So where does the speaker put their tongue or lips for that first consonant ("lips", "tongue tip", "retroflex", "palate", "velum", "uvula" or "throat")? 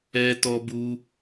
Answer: tongue tip